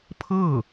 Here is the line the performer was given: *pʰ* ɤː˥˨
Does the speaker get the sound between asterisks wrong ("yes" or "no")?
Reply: no